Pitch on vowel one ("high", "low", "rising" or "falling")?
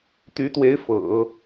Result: rising